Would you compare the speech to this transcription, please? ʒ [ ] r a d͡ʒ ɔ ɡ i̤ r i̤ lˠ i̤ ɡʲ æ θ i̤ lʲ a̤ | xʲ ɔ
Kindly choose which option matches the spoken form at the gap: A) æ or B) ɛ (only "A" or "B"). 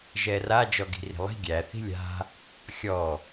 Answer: B